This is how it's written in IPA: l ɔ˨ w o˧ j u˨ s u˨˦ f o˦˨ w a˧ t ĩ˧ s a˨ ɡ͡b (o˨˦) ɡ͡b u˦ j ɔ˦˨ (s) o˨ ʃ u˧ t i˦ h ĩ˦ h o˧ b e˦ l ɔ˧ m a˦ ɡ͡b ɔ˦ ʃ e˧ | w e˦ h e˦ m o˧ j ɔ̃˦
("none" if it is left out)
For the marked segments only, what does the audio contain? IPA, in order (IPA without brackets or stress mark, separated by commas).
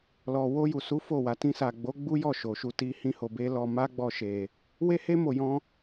o˨˦, ʃ